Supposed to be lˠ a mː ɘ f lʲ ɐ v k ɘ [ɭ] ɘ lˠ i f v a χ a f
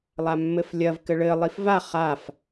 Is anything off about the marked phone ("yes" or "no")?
no